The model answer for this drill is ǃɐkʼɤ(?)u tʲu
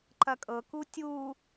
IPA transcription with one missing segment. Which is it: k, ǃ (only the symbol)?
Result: k